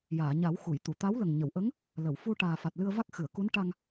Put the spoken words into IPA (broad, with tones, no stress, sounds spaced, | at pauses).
j aː˨˩˨ ɲ a˨˩˦ w x u˨˩˨ j t̪ u˨˩˨ t̪ a˧˥ w l ə˨˩ ŋ ɲ ə˨˩˨ w ʔ ə˧˥ ŋ | l ə˨˩˨ w f u˧ ʈ aː˨˩ f a˨˩ t̚ l ɨ˧ ə̯ v a˦˥ k̚ x ɨ˨˩˨ ə̯ k u˧˥ n ʈ a˧ ŋ